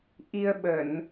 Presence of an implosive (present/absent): present